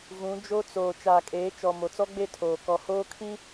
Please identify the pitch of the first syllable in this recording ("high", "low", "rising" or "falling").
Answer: rising